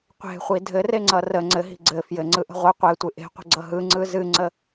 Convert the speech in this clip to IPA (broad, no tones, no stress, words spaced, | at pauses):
qʷe̤χʷi dʱɘreŋ͡ǀʌ rə ŋ͡ǀɘɦi̤ ɡ͡ǀɘ fjɘŋ͡ǀɯʔə̤ ʁʷɨ qʷetʷɨ ʔe̤qʷə̤ɡ͡ǀʌ ɦɯŋ͡ǀɯ zɨŋ͡ǀə